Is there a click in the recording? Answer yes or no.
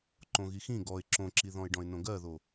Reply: yes